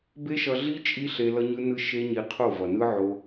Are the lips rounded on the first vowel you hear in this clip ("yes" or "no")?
no